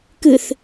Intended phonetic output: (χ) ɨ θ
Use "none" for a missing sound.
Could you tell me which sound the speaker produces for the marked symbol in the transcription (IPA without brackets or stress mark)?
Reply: k